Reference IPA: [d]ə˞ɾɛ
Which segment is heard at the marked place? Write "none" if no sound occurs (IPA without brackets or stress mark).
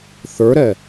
θ